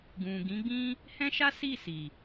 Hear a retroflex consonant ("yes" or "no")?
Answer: no